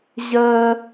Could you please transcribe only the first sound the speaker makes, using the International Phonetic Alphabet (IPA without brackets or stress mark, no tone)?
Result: ʑ